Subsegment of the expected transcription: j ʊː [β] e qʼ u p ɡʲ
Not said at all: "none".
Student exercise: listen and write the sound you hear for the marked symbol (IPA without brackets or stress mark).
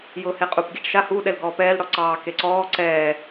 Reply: h